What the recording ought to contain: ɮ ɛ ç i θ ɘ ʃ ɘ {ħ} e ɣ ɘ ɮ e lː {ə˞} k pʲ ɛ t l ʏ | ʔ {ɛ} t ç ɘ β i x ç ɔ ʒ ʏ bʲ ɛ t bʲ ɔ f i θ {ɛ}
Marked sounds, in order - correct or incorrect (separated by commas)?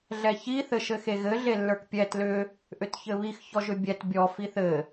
incorrect, correct, incorrect, incorrect